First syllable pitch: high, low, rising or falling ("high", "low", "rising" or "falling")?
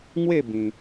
falling